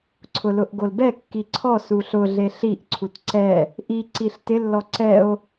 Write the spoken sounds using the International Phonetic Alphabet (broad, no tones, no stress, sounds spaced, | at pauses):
ǀʰ ʊ l ʊ ʔ ɡ o l b ɛ kː i ǀʰ ɔ s u ɬ ʊ ɮ e ɬ i ʔ ǀʰ u t ǀ ɛ | ʔ i ǀ i ɬ t ɪ lː ɔ ǀ ɛ o̯